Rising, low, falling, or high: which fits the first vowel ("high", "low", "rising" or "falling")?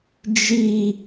high